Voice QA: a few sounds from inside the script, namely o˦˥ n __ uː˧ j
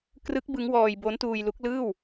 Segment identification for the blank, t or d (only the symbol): t